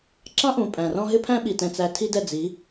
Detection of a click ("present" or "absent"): present